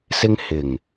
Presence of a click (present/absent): absent